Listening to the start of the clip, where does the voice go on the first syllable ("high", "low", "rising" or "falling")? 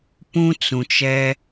high